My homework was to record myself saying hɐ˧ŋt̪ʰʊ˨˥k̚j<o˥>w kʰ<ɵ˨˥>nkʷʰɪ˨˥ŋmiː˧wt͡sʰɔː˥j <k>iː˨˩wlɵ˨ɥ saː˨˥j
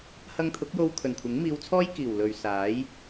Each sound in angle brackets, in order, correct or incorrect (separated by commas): incorrect, incorrect, correct